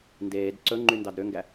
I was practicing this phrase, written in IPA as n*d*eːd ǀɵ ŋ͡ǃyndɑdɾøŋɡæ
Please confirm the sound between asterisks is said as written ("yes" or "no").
yes